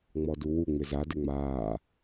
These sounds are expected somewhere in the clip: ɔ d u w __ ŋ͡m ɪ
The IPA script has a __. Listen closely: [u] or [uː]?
u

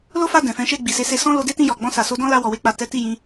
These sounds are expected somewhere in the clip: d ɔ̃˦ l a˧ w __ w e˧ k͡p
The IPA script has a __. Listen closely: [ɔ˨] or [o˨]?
ɔ˨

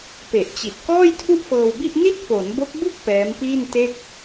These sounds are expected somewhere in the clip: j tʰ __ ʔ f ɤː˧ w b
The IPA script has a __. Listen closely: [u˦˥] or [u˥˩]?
u˥˩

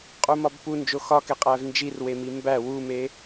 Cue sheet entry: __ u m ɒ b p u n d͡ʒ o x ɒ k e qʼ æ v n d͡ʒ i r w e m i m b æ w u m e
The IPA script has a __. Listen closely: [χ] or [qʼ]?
qʼ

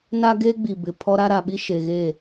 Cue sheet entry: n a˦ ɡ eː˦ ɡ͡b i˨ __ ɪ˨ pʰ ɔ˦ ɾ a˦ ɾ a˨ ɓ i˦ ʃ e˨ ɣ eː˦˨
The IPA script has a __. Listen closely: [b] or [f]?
b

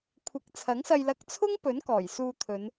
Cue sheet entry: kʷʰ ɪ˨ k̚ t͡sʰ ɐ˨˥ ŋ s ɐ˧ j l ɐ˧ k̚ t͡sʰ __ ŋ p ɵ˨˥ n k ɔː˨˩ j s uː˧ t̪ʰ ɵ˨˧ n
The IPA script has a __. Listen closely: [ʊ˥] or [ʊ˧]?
ʊ˥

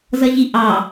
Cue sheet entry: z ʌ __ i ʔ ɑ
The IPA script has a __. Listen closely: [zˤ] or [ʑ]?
ʑ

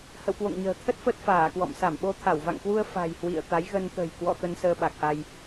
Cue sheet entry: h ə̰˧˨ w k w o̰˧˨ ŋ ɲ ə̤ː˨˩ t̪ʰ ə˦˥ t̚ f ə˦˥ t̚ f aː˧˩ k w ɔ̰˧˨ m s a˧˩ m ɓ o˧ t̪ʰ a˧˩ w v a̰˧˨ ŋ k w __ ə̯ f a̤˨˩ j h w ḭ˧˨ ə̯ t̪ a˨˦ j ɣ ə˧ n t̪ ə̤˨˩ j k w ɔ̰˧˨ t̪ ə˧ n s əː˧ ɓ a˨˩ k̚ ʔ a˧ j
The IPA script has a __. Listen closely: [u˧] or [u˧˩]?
u˧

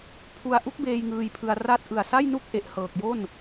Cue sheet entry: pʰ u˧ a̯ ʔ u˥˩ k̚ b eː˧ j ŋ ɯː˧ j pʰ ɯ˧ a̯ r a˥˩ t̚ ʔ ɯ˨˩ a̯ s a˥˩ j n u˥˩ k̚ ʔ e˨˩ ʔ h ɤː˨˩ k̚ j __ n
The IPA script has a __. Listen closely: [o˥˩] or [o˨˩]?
o˥˩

